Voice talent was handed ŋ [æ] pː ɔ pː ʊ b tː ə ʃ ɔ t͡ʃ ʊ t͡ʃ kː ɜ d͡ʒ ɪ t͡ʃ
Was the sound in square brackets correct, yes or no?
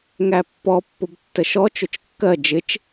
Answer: yes